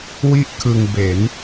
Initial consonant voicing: voiced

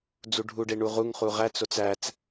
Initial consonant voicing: voiced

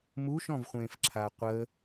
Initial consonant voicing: voiced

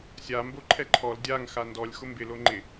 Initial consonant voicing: voiceless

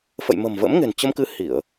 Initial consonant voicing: voiceless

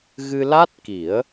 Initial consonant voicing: voiced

